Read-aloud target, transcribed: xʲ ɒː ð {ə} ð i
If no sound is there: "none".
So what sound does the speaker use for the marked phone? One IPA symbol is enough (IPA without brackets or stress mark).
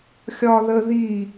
ə